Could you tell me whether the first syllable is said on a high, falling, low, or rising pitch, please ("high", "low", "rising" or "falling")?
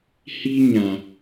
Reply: high